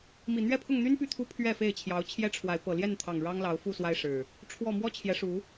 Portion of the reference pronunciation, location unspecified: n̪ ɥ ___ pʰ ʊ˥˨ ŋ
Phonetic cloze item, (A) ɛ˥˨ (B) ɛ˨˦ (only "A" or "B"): A